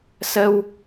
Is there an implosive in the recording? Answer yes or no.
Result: no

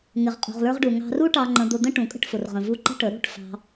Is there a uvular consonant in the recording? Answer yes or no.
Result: yes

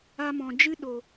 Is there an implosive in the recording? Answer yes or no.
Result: yes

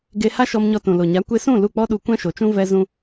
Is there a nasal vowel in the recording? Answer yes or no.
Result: yes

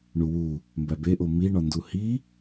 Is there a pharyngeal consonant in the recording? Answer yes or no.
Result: no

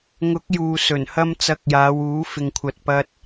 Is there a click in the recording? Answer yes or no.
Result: no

